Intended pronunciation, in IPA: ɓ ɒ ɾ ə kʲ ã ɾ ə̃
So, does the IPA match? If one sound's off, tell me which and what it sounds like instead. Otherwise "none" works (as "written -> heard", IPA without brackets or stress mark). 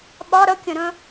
ã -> ə̃